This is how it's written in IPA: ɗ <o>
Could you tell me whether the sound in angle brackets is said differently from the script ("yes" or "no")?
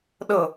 yes